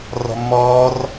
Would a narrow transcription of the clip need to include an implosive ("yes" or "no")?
no